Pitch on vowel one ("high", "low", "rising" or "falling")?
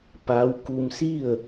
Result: rising